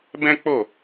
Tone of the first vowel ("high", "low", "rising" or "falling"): high